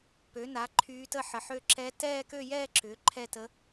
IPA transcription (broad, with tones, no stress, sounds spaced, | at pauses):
p ø˩˥ n a˩˥ ǃʰ yː˧˥ t ə˥˧ ħ ə˩˥ ħ ø˥˧ ǁ ɛ˧˥ t ɛː˥˧ k ø˥˧ j ɛː˥˧ ǁ ʏː˩˥ ǃʰ ɛ˥˧ t ə˧˥